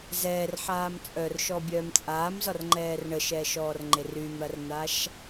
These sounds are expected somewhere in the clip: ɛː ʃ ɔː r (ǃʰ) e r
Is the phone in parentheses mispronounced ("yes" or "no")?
yes